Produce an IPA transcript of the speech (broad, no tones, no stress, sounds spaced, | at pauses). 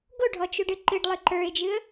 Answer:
ɡ o ɖʱ ɔ t͡ʃ u ɖ ɨ ǃ ɨ ɖ lˠ ɨ ǃ ə˞ ɪ̯ d͡ʒ ɨ ə̯